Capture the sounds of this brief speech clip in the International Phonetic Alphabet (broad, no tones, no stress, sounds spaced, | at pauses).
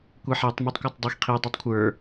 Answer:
kʷ ɛ ħ ɛ tˤ m o tˤ kʷ a tˤ dˤ i x qʰ i dˤ a tˤ kʷʰ ə˞